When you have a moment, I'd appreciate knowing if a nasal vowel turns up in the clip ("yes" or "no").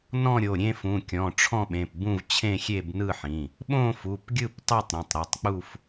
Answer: yes